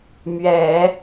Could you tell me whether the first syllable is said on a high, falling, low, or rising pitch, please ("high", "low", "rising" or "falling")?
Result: low